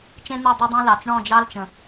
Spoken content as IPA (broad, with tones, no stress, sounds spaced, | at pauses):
t͡ʃ ẽ˦ n̪ e˦˨ dˤ o˦ dˤ ẽ˦ l ɑ˨ t͡s ɳ ɔ̃˦˨ d͡ʒ ɑ˦ l t͡ʃ ə̃˨